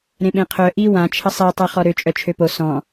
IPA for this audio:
ɾ ẽ ɓ ẽ qʰ œ ʔ i w ã t͡ʃʰ ə sˤ e tˤ ɛ χ ɔ ɾ ø t͡ʃʼ œ t͡ʃʰ ø p o s ɔ̃

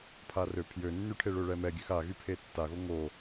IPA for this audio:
pʰ a r ø pʰ j ø nː y ʈʰ e ɭ ø ɭ ɛ m ɛ ɡʲ ø x a ɣ y pʰ e tː a ɣ o ŋ o

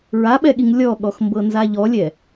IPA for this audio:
ɹ a ɓ ɛ ɠ i ŋ lʲ ɔ ɠ ɔ x m b ɤ n z a ʎ ɔ lʲ ɛ

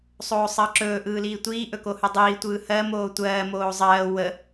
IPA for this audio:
sˤ oː sˤ əː ǁ ɵː ʔ ɯː l iː tʷ iː ʔ ɵ k o h ɯ dˤ iː tʷ ɯː h ɜ m oː tʷ ɜː m oː zˤ ɜː w ə

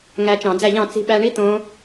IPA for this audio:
ŋ æ˧ t͡ʃ ɑ̃˧˩˧ d͡z æ˥˩ ʎ ɑ̃˥˩ t͡s i̤˧ ɓ æ˧ ɳ i˦˥ t̪ õ˦˥

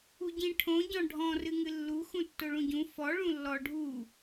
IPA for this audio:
u ɟ ĩ ʈʰ õ ɟ ɔ̃ ɖʱ ɔ̃ r ɨ ŋ ɨ lː u x ũ tː o ɭ ũ ɟ ũ f ɔ ɭ ũ lː ɔ ɖʱ u

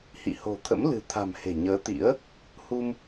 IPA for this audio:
h ḭ˧˨ h o̤˨˩ t̪ʰ ə̰˧˥ m l ɨ̤˨˩ t̪ʰ a̤˨˩ m h e̤˨˩ ɲ əː˨˦ t̪ ḭ˧˥ ə̯ | h u˧ m

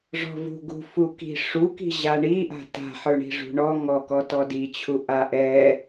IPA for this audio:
ʐ ɔ̤ v ṳ ɡ ṳ f u k i̤ ʂ u k i̤ ʑ a ɳ i ʔ a̤ t a̤ ħ ə˞ ɳ i̤ ʐ ṳ ɳ ɔ ŋ ɔ k ɔ t ɔ d i t͡ɕʰ u ʔ a ʔ ɛ

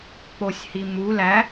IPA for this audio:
k͡p o sʲ h i m u l æ

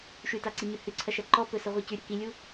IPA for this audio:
ʃ ʉ t a ǀ i ɲ ʉ h ʉ ǀʰ ɐ ʃ ɐ ǃ ɔ p ɵ s ə ʁʷ i c ʉ ɾʲ ɐ k i lʲ u

